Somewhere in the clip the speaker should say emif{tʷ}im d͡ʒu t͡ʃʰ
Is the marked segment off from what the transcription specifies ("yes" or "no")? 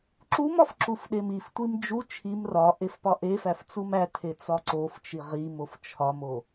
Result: no